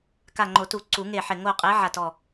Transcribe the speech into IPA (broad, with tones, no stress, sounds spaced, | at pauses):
k a˧˩ ŋ͡ǃ o˨˩˦ t u˨˩˦ ǀ u˨˩˦ ŋ e˧˩ ħ ɪ˧˩ ŋ o˧˩ qʼ e˨˦ ʕ a˧˩ t ɔ˧˩